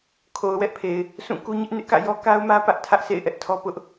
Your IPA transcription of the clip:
kʰo˨ʊ̯wɛ˦ʔpʰe˨ɪ̯ | sʰũ˦˨ku˦ ɲɪ˦ʔnɪ˦ʔkä̰˦˨jɔ˦ ka˦ʊ̯mä˦ pä˦ʔ tʰä˦ʔsḛ˦˨ɪ̯ʔɛ˦ʔ tʰɔ˦pʊ˦ʔ

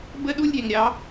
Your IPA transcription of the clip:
bə˦ɗu˦lʲɾʲɛ˨ŋɾʲɑ˨˦

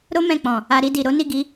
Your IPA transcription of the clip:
ɾo˦ mɛ̃˦˨k͡pɔ̃˨ | a˧ɾi˧di˨ ɾo˨˦ni˦˨ɡi˨˦

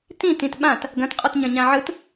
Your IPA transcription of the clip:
tĩ tĩtɓãt | ɡɐ̃t qʼɔtɲɐ̃ɲãʕɯt

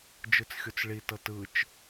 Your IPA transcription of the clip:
d͡ʒɯt͡sxʲot͡sɭi tɤtɯt͡ʃ

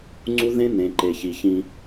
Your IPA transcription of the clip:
ŋ͡ǀu˦ ðẽ˦ nẽ˨ǃe˨çi˨ çĩ˦

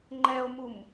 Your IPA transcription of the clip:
ŋ͡ǃɛo̯mum

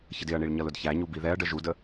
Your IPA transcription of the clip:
çədɪɐ̯ɳiɭ ɲʌlʊdçæɲu biðɛɐ̯ɖə ʒudə

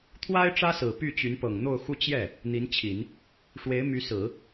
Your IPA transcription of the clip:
t̪ʰwa˥ɪ̯ ʈ͡ʂä˥sɹ̩˨˩ py˥˩t͡ɕy˧˥n pɤ˨˩ŋn̪o˥˧ʊ̯xu˥˧ t͡ɕjɛ˥˩ | n̪i˧˥nt͡ɕʰi˨˩˦n | ʂwe˧˥ɪ̯my˧˥sɹ̩˨˩˦

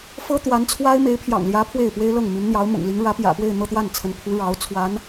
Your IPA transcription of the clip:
fɤ˥t̪wa˧˥nt͡sʰwa˥ɪ̯ me˧˥ɪ̯pʰjɑ̰˨˩ŋljä˧˥ pʰwe˥˩ɪ̯pwe˥ɪ̯lɤ˥˩ŋmy˧˥n n̪jɑ˧˥ʊ̯mʊ̰˨˩ŋli˧˥ŋ ɻä˧˥pjä̰˨˩pwe˥˧ɪ̯ n̪ɤ˥˧t̪wa˥˩nt͡sʰə˧˥npʰu˧˥ ɻɑ˧˥ʊ̯t͡sʰwa˧˥n

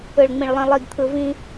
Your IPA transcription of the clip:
ɯ˨ɭŋ͡mĩ˨ɭlˠĩ˨ lˠi˨ɡ t̪ʰɯ˨ vĩ˦

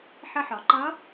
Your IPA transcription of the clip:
ħə˧ħɒ˩ǃʌ˧˥

